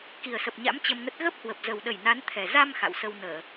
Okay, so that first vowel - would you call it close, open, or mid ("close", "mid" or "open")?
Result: close